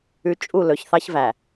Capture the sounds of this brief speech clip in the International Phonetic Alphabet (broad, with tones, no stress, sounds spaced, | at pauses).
ʉ˨ t͡ʃʼ u˦˨ l ɵ˨ ç θ ɑ˦ ç v æ˨